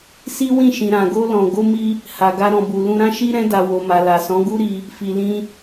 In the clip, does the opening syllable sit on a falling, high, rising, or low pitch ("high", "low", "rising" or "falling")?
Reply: high